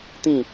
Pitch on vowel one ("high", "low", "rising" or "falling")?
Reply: falling